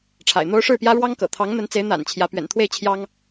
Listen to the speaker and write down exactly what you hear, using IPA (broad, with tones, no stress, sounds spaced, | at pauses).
ʈ͡ʂʰ a̰˨˩ ɪ̯ n̪ o˦ ʊ̯ ʂ ɻ̩˥˨ p j ä˦ ɻ w ɑ˦ ŋ k ɤ̰˨˩ t̪ʰ ɑ˨˦ ŋ n̪ ə˨˦ n t͡s e˨˦ ɪ̯ n̪ a̰˨˩ n t͡ɕʰ j ä˨˦ p ɥ ɛ̰˨˩ n t̪ʰ w e˥˨ ɪ̯ t͡ɕʰ j ɑ˦ ŋ